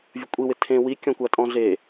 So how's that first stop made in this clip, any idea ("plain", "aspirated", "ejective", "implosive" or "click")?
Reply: ejective